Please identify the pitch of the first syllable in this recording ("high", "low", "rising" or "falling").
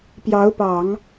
rising